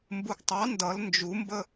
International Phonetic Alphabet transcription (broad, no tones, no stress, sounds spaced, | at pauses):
m b u ɡ tˤ ɑ n d ʌ l n d͡ʒ u m b ə